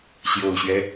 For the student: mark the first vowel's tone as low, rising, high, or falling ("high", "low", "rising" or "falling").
low